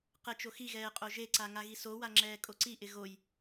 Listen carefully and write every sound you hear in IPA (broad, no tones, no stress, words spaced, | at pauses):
qɛt͡ʃoxiɣɛː qʼoʒeǀa ŋaɣisowa ŋ͡ǁɛːkʼoǀiʔɪ ɣoj